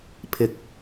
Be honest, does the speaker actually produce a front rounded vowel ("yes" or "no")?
no